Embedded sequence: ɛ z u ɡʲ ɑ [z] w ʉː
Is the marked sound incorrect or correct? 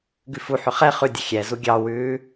incorrect